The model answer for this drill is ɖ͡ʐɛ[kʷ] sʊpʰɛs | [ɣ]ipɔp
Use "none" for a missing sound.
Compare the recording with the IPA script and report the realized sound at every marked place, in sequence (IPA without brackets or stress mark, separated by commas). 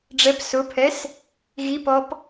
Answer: p, ɣ